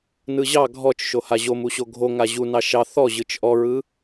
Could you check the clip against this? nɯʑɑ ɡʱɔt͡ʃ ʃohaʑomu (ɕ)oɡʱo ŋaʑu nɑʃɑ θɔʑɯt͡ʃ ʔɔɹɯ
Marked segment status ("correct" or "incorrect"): correct